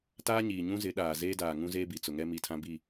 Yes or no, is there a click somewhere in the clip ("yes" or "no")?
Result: no